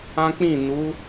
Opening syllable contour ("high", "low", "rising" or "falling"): high